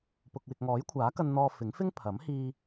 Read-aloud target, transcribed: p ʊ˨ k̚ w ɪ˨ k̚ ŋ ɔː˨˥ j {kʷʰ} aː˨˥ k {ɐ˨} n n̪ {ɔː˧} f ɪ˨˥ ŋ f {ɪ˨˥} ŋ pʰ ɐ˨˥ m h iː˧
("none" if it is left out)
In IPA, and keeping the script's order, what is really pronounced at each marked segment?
kʷʰ, ɐ˧, ɔː˧, ɪ˥

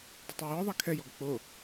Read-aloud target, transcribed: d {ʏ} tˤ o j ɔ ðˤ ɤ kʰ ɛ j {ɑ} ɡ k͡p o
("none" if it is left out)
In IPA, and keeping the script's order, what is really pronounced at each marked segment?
ʏ, ɔ

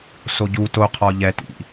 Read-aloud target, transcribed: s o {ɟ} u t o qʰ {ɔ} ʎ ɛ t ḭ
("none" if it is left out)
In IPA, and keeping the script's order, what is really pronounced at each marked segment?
ɟ, ɔ

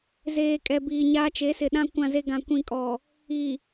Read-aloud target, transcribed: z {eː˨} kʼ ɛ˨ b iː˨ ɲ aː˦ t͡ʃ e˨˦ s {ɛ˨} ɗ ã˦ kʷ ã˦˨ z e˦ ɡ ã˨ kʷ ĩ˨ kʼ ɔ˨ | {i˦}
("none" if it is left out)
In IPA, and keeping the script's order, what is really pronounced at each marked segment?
eː˨, ɪ˨, i˨

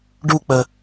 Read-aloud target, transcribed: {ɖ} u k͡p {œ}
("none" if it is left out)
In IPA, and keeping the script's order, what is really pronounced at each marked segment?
ɖ, ə

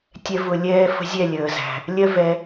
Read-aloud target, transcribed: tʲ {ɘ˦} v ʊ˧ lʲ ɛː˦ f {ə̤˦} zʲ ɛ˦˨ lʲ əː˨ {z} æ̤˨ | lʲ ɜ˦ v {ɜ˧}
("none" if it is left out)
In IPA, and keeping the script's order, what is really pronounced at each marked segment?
ɛ˦, ə̤˦, z, ɛ˧

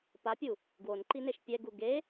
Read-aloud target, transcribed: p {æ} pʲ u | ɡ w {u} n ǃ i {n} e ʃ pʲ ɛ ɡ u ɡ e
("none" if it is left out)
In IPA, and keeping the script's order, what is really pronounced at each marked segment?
a, o, n

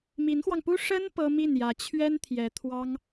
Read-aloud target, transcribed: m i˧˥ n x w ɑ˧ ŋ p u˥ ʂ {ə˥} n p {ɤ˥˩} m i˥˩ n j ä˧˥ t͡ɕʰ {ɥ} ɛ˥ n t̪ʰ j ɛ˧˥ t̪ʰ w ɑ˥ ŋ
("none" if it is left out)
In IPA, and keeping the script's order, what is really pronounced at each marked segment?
ə˥, ɤ˥, ɥ

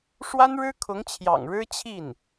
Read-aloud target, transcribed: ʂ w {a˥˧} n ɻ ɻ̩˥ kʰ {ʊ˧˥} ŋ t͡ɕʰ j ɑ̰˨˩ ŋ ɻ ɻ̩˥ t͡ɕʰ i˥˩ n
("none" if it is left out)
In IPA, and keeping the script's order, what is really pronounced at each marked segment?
a˥, ʊ˧˥

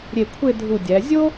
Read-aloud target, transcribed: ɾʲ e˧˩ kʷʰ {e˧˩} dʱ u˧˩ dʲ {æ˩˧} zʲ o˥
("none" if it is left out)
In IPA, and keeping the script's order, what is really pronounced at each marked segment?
e˥˧, æ˩˧

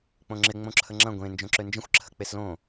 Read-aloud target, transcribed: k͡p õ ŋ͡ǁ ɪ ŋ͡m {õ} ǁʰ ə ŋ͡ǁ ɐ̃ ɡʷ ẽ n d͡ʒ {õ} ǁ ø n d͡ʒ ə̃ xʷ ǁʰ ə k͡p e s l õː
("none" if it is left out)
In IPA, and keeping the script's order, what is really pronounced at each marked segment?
õ, õ

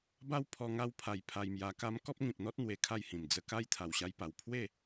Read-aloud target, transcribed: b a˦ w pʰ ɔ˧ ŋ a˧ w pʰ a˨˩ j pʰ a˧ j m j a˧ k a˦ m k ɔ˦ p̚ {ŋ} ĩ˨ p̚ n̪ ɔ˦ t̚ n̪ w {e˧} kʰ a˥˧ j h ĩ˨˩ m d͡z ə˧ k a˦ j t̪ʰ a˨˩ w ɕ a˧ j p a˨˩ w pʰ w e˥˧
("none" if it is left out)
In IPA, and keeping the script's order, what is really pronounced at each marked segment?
ŋ, e˧

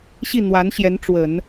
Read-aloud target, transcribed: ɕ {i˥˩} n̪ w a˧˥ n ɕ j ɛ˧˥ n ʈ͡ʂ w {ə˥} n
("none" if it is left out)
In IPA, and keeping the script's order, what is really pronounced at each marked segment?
i˥˩, ə˨˩˦

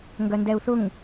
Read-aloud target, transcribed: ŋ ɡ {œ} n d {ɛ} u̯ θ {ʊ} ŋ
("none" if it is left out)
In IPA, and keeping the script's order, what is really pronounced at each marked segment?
œ, ɛ, ʊ

